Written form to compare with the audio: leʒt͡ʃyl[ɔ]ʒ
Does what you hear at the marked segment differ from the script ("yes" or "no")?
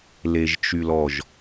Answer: no